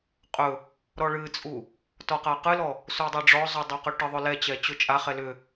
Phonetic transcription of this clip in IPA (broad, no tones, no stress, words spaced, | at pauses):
qʼɵ | ɾɔɭɨt͡sʼu | tɔqaqɨlɔ | sudˤɛɖ͡ʐɔzˤu dˤaqɵʈəðˤɵ lɛt͡ɕɛ t͡ɕɵt͡ʃʼaχɛ lʏ